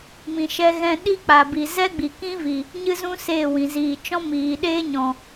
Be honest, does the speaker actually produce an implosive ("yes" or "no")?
yes